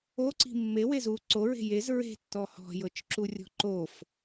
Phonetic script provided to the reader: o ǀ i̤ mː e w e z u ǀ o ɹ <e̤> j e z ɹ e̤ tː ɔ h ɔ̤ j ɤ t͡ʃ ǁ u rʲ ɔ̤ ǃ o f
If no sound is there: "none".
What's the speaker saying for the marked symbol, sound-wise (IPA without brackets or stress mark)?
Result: e̤